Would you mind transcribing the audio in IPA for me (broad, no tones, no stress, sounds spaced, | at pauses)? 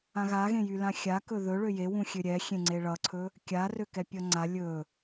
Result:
ã ɣ a ɣ ẽ j y l ã xʲ a k ɵ ð ɵ ɭ ø j e w ũ xʲ ø ɾʲ ɛ xʲ ẽ ŋ͡ǀ e ɭ ʌ ǀʰ ɵ | kʲ a r ø k ɛ pʲ ʌ ŋ͡ǀ a lʲ ɵ